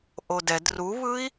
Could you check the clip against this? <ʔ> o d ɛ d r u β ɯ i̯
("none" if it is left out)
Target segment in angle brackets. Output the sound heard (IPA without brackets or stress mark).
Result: ʔ